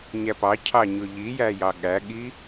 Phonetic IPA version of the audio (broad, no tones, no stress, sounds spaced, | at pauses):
ɲ æ p ɑ cʰ ɑ ɲ ʊ ʎ i j æ j ɑ ɠ æ ɠ i